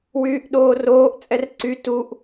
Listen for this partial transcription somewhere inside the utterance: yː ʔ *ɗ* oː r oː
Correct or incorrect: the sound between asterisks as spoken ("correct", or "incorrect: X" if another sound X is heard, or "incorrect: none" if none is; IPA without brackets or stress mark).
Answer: correct